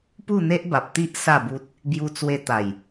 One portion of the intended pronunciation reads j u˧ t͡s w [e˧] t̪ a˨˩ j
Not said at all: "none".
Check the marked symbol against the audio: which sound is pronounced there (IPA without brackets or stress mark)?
e˧